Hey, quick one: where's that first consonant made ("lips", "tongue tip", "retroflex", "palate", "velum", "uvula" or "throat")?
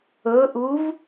throat